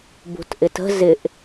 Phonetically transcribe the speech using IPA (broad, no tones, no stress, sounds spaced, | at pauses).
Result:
b ṳ t ʔ ɪ t ə̤ z ɪ ʔ